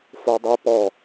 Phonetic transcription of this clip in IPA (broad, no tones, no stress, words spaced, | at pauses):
fodˤe pɔ